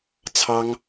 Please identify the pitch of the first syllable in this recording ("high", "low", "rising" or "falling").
high